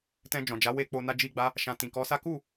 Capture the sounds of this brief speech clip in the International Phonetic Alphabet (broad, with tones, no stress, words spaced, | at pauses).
tɛ̃˧ d͡ʒɔ̃˨d͡ʒa˨˦ we˧k͡po˧ na˦d͡ʒi˦ɡ͡ba˦ | ʃã˧ tĩ˨kɔ˨˦sa˦ ku˦˨